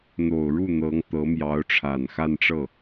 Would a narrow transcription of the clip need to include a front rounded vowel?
no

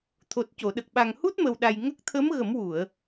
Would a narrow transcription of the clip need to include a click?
no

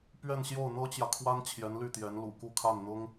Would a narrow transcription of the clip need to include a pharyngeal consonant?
no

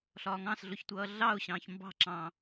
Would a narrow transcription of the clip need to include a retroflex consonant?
no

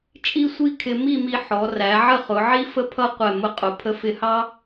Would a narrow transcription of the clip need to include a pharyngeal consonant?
yes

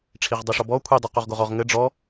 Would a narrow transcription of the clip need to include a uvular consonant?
yes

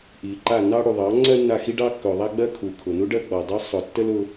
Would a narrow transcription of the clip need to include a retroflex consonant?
yes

